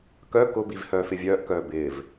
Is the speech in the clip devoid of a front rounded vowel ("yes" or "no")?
no